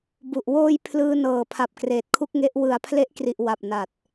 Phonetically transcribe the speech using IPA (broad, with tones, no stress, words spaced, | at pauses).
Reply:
bu˨˩ʔ woː˧j pʰlɯː˧nɤː˨˩pʰa˨˩p̚ kreː˨˩t̚kʰu˥˩k̚ŋe˦˥ʔ wɯ˩˦a̯pʰle˦˥ʔkri˨˩ʔ wa˨˩p̚na˨˩t̚